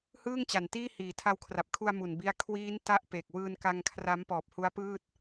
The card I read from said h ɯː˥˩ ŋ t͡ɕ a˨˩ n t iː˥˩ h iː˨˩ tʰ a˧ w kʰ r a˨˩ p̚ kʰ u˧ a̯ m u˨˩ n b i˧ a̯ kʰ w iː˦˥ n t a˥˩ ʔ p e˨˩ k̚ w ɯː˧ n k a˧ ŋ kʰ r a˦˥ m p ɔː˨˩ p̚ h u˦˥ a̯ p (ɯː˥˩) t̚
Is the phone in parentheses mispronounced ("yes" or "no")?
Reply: no